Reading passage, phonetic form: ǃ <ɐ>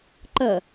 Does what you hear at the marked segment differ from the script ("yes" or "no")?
no